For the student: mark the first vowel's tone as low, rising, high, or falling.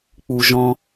high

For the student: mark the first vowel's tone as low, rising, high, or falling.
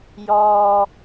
low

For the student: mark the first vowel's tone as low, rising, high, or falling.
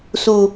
high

